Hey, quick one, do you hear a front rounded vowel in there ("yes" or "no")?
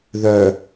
yes